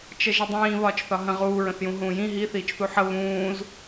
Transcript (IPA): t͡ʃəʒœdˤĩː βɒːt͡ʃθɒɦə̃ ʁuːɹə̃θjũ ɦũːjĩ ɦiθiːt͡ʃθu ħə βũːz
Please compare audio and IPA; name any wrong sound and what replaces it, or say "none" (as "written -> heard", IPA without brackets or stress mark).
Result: œ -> ə